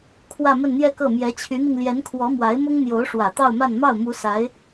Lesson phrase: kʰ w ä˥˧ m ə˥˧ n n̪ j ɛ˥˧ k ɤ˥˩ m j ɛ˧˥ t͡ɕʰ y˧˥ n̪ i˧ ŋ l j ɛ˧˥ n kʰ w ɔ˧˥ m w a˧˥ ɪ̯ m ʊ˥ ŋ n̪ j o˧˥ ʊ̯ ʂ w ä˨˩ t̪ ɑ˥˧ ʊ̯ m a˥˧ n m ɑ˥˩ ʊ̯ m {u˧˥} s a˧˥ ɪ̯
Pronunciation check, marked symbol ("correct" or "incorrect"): correct